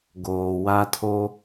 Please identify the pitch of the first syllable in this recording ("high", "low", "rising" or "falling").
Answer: low